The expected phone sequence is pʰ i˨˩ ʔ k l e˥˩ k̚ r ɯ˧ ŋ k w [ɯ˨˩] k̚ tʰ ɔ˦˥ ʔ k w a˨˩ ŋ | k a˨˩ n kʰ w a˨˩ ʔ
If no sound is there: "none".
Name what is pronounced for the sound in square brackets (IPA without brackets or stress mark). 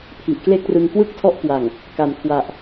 ɯ˥˩